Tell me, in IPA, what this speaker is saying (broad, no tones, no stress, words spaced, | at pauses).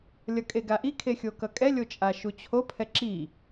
lʲʌkʼeɡaʔi kʰexʲokʌkʼɛ lʲot͡ʃʼaʃut͡ɕʰo pʰɛǁi